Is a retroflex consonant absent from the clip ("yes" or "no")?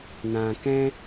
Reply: yes